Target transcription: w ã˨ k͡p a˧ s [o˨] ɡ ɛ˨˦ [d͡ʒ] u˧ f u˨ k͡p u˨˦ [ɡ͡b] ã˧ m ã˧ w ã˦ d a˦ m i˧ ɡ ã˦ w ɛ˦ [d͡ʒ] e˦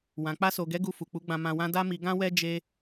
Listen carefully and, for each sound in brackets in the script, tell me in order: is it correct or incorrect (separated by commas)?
correct, incorrect, correct, correct